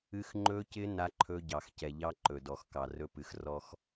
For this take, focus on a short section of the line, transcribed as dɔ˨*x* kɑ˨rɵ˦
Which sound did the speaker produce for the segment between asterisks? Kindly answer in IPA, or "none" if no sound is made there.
x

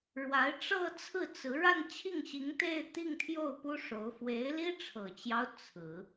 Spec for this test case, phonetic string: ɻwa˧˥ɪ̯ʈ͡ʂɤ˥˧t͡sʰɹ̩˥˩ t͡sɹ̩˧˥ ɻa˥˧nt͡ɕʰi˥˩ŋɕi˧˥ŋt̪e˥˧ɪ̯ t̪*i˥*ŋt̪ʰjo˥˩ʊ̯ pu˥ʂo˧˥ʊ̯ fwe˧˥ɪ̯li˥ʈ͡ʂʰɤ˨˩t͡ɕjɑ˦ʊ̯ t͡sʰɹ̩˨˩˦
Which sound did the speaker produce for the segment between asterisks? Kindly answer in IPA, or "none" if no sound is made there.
i˥˧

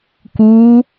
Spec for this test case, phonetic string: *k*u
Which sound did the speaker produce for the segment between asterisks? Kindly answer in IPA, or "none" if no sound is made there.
k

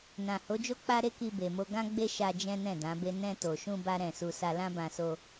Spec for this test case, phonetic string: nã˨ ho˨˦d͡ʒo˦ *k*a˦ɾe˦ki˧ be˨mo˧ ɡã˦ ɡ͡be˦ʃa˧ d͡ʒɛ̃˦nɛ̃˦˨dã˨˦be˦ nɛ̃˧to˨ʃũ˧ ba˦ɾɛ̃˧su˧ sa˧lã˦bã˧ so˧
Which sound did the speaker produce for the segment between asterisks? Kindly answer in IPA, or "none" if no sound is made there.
k͡p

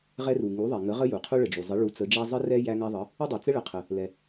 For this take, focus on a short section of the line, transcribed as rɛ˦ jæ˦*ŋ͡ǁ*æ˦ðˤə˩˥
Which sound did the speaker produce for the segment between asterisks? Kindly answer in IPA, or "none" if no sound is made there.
ŋ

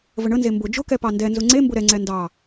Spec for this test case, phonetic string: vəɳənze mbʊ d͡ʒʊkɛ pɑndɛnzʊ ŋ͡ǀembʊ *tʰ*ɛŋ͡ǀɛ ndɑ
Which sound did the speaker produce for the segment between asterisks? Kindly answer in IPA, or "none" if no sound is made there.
ɾ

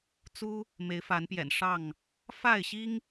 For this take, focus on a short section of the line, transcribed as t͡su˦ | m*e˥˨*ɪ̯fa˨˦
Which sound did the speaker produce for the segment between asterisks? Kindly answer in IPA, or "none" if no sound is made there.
e˨˦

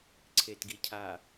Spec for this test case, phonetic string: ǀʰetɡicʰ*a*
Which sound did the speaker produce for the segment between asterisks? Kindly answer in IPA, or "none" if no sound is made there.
a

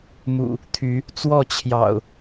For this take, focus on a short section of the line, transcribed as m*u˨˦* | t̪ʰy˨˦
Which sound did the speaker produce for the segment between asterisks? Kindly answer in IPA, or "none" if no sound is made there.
ṵ˨˩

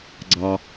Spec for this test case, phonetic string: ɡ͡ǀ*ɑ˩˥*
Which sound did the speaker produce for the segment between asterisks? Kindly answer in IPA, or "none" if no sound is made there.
ɑ˧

